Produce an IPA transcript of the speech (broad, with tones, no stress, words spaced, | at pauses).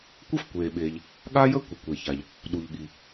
kʷə˥fkʷeː˩ɓeː˩ʎ | ɠa˥jə˥ kʷɛ˩kʷe˩ça˩ʎ | ɗu˩ʎɠi˩